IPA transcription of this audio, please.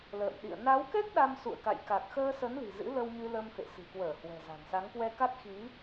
l ə̰ː˧˨ m ɗ ḭ˧˨ ə̯ n a˨˦ w k ɛ˦˥ k̚ ɗ a˧ m s ṵ˧˨ ə̯ k a̰˧˨ j k a˨˩ k̚ x əː˧ s ə˨˦ n l i̤˨˩ z ɨ̰˧˥ l ə˧ w ɲ ɨ˧ l ə˧ m f ḛ˧˨ s ɨ̤˨˩ k w əː˧˩ h w ɛ̤˨˩ z a̤˨˩ n s a˨˦ ŋ k w ɛ˧ k a˦˥ t̚ x i˨˦

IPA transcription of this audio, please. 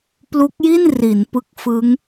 p l u˦˥ k̚ j i˥˩ n r i˩˦ n p ɯ˦˥ k̚ f ɯ˦˥ ŋ

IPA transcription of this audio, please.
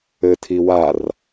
ɘ tʰ i w a r

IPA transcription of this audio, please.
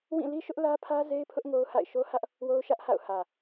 w ĩ˦˨ l i˦ ʃ ʊ˦ ʔ l ä˦ pʰ ä˦ z e˦ ɪ̯ pʰ ʊ˦ ʔ ŋ o˦ ʊ̯ h a̰˦˨ ɪ̯ ʃ o˦ h ä˦ ʔ | w o˦ ʊ̯ ʃ ä˦ ʔ h a̰˦˨ ʊ̯ h ä˨

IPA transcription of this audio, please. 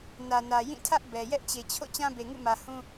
n ä˨ n ä˨ j ĩ˦˨ tʰ ä˦ ʔ b ɛ˨ j ɛ˦ ʔ t͡ɕ e˨ t͡ɕʰ o̰˦˨ t͡ɕ ã˦ b e˨ ŋ ṵ˦˨ m ä˨ h ũ˦

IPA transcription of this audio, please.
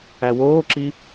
æ w oː ǁ i

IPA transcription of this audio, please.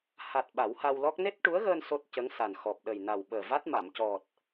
h a˨˩ t̚ ɓ a˨˩˦ w h a˧ w l ɔ˦˥ k̚ n e˦˥ t̚ ʈ u˧˥ ə̯ ɣ əː˧ n s o˦˥ t̚ c ə˧˥ ŋ s a˨˩ n x ɔ˨˩ p̚ ɗ ə˨˩ j n a˨˩ w ɓ əː˨˩ v a˦˥ t̚ m a˨˩˨ m c ɔ˨˩ t̚

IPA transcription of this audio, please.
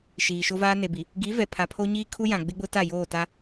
ʃ iː˨ ʃ o˦ v aː˦ n e˨ b i˨ | ɡ i˨˦ v ɛ˨ pʰ a˨ pʰ o˦ ɲ iː˦ kʰ u˦ j ã˨ ɡ͡b ɪ˦ ɡ͡b ʊ˦ t a˦˨ j oː˦˨ t a˦

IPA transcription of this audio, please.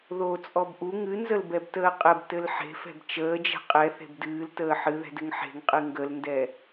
ð o t͡sʼ ɔ b ʔ u ŋ ɨ n z ə l b ɛ b t əː qʼ ɘ b t ɘ l ħ e̤ f ɛ̤ b t͡ʃ əː d͡ʒ ɛ̤ qʼ ɛ θ e̤ b d ɨː l t əː ħ ɨ ð ɛ̤ d ɘ ŋ ħ e̤ ŋ qʼ ɨ ŋ ɡ ə l n d ɛ

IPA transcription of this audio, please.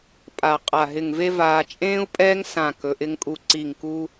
pʼ a˧˩ qʼ a˧˩ ɦ ɪ˧˩ ŋ v e˥ v aː˧ t͡ʃʼ ẽː˥ u̯ pʼ ɛː˥ ŋ s ã˧˩ k ɵ˩˧ ʔ ɪ˧ ŋ kʼ u˧˩ ǀ i˧˩ ŋ k u˧

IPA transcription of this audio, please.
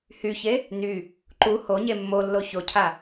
h y ç e | n y | ǃ u h o ɲ e mː o lː o ç o cʰ a

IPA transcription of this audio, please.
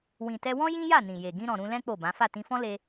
w ĩ˨ t ɛ˧ w ɔ̃˦ j ĩ˦ j a˦˨ n ĩ˨ j e˨ ɡ ĩ˧ ɾ ɔ̃˨ ɾ ũ˧ l ɛ̃˦ k͡p o˦˨ b ã˨˦ f a˦˨ t ĩ˧ f ɔ̃˦ l e˦

